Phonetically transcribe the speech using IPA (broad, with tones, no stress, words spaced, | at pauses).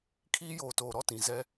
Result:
kʰiː˦joː˨toː˨ɾɔ˦ tĩ˨zɛ˦